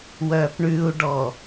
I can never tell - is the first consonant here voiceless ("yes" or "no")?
no